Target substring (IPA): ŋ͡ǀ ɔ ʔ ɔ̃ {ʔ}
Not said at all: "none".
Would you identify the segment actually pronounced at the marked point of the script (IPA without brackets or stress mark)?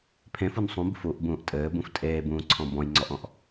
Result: ʔ